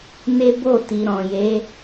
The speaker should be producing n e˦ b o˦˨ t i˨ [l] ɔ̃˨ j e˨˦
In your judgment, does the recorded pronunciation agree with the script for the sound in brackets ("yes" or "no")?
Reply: no